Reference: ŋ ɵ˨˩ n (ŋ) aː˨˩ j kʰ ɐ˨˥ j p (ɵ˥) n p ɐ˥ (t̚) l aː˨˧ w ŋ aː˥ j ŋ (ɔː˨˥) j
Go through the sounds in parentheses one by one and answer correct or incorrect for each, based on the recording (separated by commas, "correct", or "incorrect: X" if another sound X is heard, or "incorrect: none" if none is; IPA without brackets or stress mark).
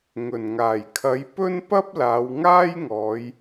correct, correct, incorrect: p̚, incorrect: ɔː˨˧